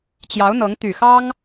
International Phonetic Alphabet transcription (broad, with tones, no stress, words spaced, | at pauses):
t͡ɕjɑ˧˥ʊ̯n̪ɤ˧˥ŋ t̪y˨˩xɑ˥ŋ